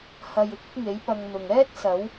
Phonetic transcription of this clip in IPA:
h ɐ˨ j ɪ˨ k̚ ɪ˥ k̚ ŋ e˨˥ j p ɐ˧ ŋ n̪ ʊ˨ ŋ ɛː˥ t̚ s ɐ˨˥ w

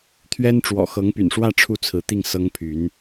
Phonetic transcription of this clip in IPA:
t̪ʰ ɥ ɛ˥ n ʈ͡ʂ w ɔ̰˨˩ x ɤ˧˥ ŋ p y̰˨˩ n ʂ w ä˥˧ ʈ͡ʂʰ u˥˩ t͡sʰ ɹ̩˧˥ t̪ i˥˩ ŋ s ɤ˥ ŋ pʰ y˧˥ n

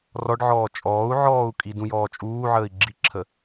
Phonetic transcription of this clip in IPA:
r ɔ ɖ ʕ ɔː t͡ʃʼ ɔː u̯ ʕ ɔː u̯ kʼ i d ũ j ɔː t͡ʃʼ uː ʕ əː i̯ ɡ͡ǁ i ǁʰ ə

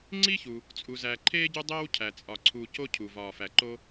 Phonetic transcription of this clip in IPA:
ŋ͡ǀ i˥ ç u˩ | t͡sʼ u˩ z æ˩ ǃʰ eː˥ ɟ u˦ dˤ eː˥ w cʰ æ˩ t͡sʼ ɒ˩ ǀʰ uː˨ c o˦ cʰ u˩ v ɒː˩ f æ˩ ǃ o˦

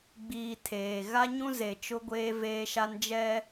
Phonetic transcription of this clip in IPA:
ɡ͡b iː˨ tʰ eː˨ ɣ a˦ ɲ ũ˦ z e˨ t͡ʃ ʊ˦ ɡʷ eː˦ v eː˦ ʃ a˦ n d͡ʒ ɛ˦

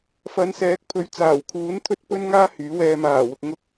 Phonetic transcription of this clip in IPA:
f ɐ˨˧ n s ɛː˨˥ k̚ pʰ ɵ˨˥ ɥ t͡s aː˨˩ w kʰ uː˨˥ n t̪ʰ ɵ˥ t̚ p ɵ˥ n ŋ aː˥ h yː˨˥ w ɛː˧ m aː˨˩ w ʊ˨ k̚ ŋ ʊ˧ k̚

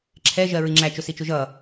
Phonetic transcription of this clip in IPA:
ǁʰ ɛ ʒ ɜ ɹ i ŋ͡ǁ æ t͡ʃ ʊ s i t͡ʃ ʊ ʒ ʌ

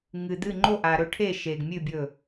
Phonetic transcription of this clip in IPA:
ŋ ɨ˨ d̪ ɨ˥˨ ŋ͡ǃ o˥˨ ʔ a˨ ɾ ɵ˥˨ ʈʰ e˥˨ ʃ e˨ ɡ mʲ ʉ˥˨ bʲ ɵ˥˨

